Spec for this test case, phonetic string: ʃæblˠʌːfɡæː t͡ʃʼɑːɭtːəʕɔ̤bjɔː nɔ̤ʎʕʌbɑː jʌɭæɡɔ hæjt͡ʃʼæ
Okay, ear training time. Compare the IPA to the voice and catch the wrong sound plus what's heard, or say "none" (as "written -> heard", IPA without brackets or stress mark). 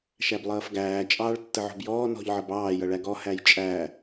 none